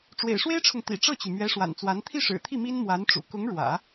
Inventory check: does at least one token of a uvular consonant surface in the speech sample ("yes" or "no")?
no